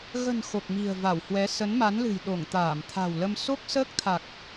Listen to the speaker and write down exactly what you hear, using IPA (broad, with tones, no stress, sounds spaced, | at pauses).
ɣ ə̤˨˩ n x o˨˩ k̚ m i̤˨˩ ə̯ v a˧˩ w h w ɛ˨˦ s ə˨˦ n m a˨˦ n l ɨ̤˨˩ j ɗ o˧˩ ŋ t̪ aː˧˩ m t̪ʰ a̤˨˩ w l ə˧ m s o˦˥ k̚ s əː˦˥ k̚ t̪ʰ a˨˩ k̚